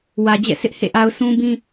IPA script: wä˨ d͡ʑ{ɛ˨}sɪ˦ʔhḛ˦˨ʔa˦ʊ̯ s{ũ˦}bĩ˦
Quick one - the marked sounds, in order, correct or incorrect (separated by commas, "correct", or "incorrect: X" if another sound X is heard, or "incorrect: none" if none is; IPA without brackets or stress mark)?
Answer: incorrect: ɛ̰˦˨, correct